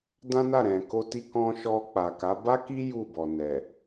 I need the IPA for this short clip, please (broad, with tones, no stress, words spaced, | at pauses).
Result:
dã˦na˦˨ ɾɛ̃˨ko˧ ti˧ kɔ̃˧ʃɔ˧ k͡pa˨ka˨˦ ba˦ki˦ ju˦˨bɔ˨ nɛ˨